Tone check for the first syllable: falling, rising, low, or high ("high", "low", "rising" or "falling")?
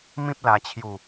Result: high